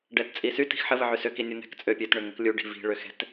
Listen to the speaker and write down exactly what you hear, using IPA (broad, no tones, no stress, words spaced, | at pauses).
ɖɛtt͡sʼisy ti̤xħə vəʕysø kinʲun̪ɛ̤k t͡sʼøpʲøt ɳʏŋəklʲu ɖi̤vi̤ ɭøxɛ̤t